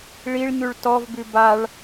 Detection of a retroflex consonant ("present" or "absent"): present